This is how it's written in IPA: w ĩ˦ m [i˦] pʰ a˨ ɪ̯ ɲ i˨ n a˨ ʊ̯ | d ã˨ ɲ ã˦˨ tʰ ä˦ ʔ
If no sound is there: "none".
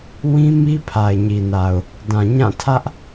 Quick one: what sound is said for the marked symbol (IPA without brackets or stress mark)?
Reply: i˦